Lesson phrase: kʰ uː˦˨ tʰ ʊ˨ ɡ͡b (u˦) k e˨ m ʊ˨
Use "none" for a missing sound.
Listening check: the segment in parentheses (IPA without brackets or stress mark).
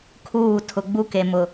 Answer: u˦